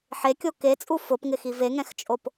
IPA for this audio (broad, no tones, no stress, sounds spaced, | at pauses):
ħ e kʲ o k e t͡sʼ u f ʊ p ŋ ɪ x i v e ŋ ɛ̃ x t͡ʃʼ o p